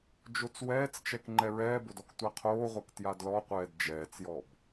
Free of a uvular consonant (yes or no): no